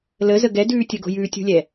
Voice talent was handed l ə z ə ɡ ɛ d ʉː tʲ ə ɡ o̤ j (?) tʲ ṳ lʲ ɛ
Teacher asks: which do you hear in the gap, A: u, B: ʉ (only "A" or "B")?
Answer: B